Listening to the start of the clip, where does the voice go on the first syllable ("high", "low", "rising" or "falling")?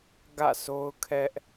falling